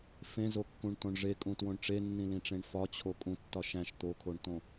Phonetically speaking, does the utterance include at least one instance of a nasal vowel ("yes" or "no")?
yes